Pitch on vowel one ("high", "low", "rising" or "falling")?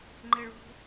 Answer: high